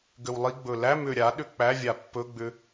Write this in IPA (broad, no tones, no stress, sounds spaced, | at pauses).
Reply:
ɡ ʏ w lˠ i ɡ͡b ɵ l æ m ʏ ɾʲ a ɗ ʏ k͡p æ vʲ a pː ɵ ɡ͡b ʏ